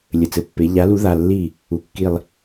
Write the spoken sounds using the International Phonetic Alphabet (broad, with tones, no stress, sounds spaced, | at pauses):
lʲ ɘ˩˧˩ t͡s ɘ˩˧˩ pː e˩˧ ʎ a˨˥ l u˨˥ ð a˩˧˩ lː i˥˩ | u˩˧˩ kː i˧˩ lˠ